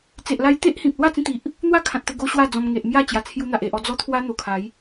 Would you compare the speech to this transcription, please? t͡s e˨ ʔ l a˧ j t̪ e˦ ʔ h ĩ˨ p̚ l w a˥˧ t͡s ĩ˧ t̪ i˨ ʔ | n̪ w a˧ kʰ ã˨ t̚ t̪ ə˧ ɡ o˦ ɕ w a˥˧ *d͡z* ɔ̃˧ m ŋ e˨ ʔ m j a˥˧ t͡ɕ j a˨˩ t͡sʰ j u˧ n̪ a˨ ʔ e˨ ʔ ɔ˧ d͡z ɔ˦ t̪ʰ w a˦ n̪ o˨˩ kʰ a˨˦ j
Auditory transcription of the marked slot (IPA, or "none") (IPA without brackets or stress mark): d͡z